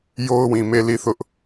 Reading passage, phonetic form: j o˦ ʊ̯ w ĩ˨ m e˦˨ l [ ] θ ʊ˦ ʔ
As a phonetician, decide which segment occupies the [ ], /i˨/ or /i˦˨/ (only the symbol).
i˦˨